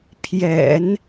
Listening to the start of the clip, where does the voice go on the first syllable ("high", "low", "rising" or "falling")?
low